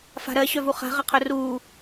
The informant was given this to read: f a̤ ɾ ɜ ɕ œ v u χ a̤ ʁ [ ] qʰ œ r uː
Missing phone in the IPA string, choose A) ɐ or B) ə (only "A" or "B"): A